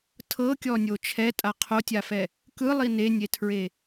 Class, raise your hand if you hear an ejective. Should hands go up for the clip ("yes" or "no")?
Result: yes